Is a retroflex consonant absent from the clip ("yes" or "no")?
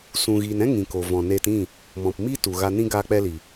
yes